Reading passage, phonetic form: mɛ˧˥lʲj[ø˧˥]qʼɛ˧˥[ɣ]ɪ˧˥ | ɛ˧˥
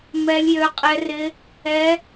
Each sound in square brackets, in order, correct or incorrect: correct, incorrect

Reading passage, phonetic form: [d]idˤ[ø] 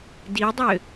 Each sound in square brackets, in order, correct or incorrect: correct, correct

